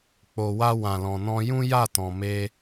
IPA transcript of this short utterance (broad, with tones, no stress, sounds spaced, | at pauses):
k͡p o˨ w a˧ w ã˨ l ɔ̃˨ n ɔ̃˧ j ũ˦ j a˦˨ t ɔ̃˨ m e˧